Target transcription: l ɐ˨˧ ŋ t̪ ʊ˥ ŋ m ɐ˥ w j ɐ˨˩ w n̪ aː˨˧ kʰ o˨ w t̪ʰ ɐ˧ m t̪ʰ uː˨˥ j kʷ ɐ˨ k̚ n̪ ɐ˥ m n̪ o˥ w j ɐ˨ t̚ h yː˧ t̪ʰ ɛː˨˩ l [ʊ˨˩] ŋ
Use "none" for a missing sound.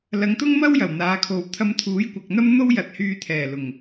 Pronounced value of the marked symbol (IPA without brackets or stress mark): ʊ˨˩